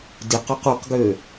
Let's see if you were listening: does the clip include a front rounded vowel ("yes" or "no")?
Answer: yes